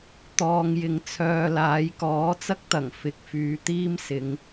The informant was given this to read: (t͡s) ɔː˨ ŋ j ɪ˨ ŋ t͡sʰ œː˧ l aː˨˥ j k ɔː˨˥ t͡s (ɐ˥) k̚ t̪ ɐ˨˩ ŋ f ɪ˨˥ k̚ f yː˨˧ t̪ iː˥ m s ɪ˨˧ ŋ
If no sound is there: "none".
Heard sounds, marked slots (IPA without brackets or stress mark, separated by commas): t̪, ɐ˥